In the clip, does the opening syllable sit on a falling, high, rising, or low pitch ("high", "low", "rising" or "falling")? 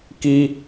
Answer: high